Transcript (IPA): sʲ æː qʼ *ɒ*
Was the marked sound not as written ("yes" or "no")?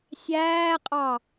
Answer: yes